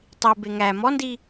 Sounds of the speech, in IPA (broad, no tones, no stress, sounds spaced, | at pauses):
tˤ i b e ŋ æ m ɔ n d i